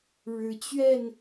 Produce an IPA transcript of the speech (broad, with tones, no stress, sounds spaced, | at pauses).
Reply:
ɻ ɻ̩˨˦ t͡ɕ ɥ ɛ˥˨ n